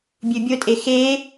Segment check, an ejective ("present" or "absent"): present